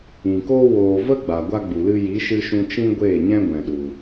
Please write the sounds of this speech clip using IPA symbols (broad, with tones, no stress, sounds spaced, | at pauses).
ĩ˨ k oː˦ w oː˨ v ə˦ ɡ͡b a˨ ɡʷ a˦ ɡ͡b u˨ l ɨ˦ j i˨˦ ʃ ɨ˧ ʃ ũ˧ t͡ʃ ĩ˦ ɡʷ eː˦˨ ɲ ɛ̃˦ ɡʷ ɛ̃˨ ɗ u˨